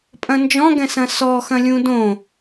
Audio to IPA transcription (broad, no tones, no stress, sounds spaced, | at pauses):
pʼ ɐ̃ n d͡ʒ ɔ̃ ɡ ɛ̃ s ɐ̃ s ɔ x ɐ̃ lʲ ũ d õ